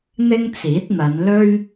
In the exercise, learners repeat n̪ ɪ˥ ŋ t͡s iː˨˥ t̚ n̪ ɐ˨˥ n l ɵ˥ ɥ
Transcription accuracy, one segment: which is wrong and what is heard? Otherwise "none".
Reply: ɐ˨˥ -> ɐ˨˧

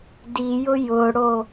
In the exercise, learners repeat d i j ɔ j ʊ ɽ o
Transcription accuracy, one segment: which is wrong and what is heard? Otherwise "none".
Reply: ɔ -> ʊ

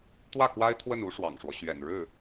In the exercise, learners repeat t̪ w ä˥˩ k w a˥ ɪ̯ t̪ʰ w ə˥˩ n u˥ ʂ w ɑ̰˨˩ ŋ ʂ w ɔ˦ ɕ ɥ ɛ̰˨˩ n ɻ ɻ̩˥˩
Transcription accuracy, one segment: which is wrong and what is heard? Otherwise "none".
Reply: none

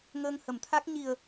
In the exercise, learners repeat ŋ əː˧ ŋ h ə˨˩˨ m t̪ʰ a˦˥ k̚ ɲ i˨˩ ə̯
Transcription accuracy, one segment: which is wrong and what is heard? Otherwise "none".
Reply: none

